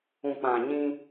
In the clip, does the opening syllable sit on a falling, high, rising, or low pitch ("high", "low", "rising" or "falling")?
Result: low